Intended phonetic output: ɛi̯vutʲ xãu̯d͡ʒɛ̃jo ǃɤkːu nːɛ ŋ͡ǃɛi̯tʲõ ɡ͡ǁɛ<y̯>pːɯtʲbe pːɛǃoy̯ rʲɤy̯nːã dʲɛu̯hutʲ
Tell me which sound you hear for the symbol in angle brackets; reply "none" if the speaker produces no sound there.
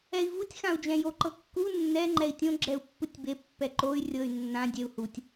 u̯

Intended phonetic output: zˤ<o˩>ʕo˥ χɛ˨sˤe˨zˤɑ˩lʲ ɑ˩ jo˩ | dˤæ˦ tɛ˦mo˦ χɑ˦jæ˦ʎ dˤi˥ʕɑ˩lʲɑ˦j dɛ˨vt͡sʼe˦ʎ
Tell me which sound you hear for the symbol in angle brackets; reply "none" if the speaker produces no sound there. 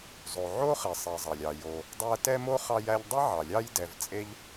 o˩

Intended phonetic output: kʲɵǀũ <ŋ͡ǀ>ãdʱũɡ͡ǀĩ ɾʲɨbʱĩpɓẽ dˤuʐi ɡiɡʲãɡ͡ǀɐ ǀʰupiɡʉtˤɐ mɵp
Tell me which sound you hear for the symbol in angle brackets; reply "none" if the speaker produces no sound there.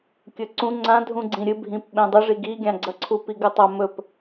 ŋ͡ǀ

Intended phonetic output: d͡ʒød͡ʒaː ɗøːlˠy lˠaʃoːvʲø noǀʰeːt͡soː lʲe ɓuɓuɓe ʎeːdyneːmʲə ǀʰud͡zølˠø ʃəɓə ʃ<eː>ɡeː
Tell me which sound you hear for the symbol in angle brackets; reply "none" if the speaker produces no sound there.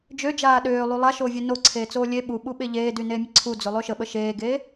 eː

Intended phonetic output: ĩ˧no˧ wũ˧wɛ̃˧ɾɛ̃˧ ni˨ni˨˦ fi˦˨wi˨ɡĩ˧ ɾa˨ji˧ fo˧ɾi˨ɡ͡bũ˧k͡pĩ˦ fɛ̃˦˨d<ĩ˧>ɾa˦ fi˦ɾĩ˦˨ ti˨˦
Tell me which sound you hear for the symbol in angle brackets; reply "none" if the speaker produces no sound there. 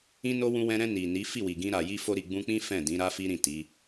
ĩ˨˦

